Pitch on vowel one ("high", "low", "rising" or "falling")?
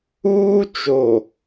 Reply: high